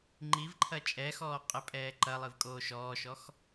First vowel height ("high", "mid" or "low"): high